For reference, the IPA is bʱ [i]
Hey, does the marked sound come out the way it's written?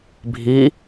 yes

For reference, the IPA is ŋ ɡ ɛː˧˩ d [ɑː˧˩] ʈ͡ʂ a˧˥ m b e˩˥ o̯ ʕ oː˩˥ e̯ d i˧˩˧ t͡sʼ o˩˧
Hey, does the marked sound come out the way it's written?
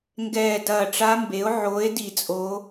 no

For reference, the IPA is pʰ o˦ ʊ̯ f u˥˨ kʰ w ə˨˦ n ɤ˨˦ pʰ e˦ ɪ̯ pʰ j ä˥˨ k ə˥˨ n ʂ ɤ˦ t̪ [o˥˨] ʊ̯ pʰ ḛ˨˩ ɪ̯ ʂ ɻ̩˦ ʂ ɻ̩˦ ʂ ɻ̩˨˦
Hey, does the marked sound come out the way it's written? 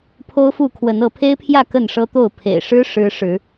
yes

